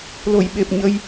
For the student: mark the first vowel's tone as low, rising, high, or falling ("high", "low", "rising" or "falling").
low